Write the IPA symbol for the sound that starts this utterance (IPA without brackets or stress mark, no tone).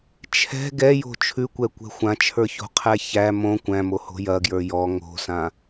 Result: t͡ʃʰ